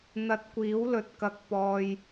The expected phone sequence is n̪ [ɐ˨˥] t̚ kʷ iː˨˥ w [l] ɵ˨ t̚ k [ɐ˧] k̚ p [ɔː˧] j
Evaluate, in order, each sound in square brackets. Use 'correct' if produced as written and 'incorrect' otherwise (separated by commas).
incorrect, correct, incorrect, incorrect